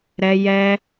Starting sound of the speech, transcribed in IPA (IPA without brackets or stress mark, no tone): ɾ